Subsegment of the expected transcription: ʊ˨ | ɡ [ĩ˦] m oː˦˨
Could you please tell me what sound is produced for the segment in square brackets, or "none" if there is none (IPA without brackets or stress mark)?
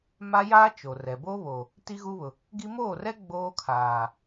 i˦